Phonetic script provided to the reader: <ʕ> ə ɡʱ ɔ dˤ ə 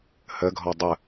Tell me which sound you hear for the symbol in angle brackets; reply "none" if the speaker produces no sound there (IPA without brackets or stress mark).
h